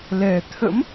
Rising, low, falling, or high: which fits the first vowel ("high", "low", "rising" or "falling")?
low